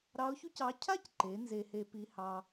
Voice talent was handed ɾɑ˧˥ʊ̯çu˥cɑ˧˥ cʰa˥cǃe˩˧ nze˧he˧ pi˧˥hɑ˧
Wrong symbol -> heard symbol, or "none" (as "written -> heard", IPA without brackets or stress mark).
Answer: none